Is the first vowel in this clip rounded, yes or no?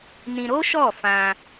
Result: no